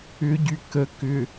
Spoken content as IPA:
ʏ ɟ y k ə k ʏ

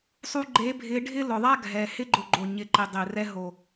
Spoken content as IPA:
sˤ u˧ ɡ͡ǃ e˨˦ bʱ ɪ˨˦ ɖʱ ɪ˦ l ʊ˨ ðˤ a˦ ɡʱ ɛ˨ h ɪ˧ ɡ͡ǃ ʊ˨ ɡ͡ǃ o˨ ɲ ɪ˨˦ ǃ ɪ˨ dˤ ɪ˨ r ɛ˧ ɦ o˨

